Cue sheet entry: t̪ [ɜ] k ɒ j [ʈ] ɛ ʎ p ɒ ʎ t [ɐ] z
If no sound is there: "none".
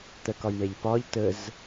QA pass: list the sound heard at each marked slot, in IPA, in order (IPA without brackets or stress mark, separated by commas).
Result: ɜ, ɳ, ə